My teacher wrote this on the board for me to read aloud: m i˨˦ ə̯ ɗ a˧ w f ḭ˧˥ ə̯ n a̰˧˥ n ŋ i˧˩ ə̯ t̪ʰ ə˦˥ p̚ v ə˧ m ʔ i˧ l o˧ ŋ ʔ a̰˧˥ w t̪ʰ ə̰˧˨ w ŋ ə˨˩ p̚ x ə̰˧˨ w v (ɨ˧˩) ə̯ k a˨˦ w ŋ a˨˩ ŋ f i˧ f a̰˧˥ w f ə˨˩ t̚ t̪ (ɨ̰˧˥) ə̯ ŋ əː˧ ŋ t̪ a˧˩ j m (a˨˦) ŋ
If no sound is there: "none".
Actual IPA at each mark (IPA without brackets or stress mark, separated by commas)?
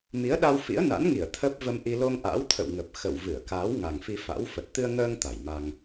ɨ˧˩, ɨ˧, a˧